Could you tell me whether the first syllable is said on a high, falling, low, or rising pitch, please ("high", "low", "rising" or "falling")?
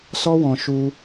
high